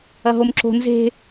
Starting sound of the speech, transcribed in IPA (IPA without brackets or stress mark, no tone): ɐ